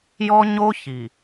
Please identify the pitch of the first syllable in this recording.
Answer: high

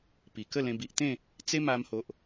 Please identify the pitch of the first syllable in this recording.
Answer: low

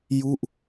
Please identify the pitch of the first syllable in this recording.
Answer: falling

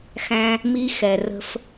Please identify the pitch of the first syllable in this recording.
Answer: high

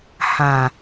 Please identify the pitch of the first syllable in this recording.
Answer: low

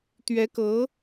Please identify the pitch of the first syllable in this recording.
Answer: rising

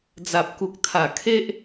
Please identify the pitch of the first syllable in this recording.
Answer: low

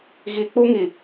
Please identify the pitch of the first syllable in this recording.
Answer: low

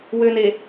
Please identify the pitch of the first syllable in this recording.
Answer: low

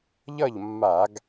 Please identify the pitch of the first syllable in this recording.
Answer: falling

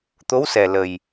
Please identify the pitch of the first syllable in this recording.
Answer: rising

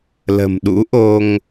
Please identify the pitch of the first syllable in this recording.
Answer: low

